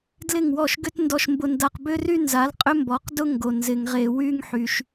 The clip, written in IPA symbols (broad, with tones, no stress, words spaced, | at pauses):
dlɪ˥˩ŋwɔ˥˩ʃɡʏ˥tndɔ˧ʃ mbʊ˧nda˧qbʏ˥ry˥ nza˩˥lqʼʏ˥ mbɔ˩˥qdʊ˥ŋɡo˩ nzɪ˩ŋʁe˩wy˧ŋħy˩ʃ